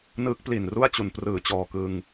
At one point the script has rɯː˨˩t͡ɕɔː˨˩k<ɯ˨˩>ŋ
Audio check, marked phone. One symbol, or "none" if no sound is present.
ɯ˧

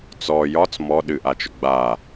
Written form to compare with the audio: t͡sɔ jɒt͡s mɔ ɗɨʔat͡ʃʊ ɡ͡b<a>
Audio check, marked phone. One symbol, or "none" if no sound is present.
a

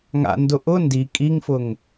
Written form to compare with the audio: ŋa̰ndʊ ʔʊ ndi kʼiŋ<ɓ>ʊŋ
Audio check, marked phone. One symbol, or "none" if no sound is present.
f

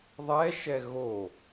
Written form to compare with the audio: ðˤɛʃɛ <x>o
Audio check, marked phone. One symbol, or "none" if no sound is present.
ɣ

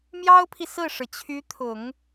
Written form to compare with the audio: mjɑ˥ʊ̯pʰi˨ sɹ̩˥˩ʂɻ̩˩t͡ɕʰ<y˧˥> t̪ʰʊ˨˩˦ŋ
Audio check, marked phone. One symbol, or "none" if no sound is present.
y˧˥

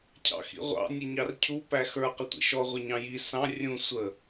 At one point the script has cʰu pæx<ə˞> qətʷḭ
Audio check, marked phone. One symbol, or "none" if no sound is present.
ə˞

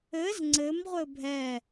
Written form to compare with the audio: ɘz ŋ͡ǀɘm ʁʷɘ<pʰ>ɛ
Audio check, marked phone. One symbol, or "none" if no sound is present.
bʱ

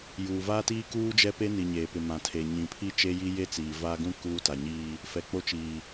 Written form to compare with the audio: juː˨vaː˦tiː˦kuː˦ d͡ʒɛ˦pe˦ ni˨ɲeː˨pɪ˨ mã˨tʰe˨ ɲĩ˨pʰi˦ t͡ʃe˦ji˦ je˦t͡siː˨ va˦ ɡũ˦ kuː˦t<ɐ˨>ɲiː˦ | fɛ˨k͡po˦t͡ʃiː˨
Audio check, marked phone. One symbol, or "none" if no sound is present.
a˨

